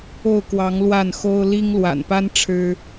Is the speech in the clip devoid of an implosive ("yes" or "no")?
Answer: yes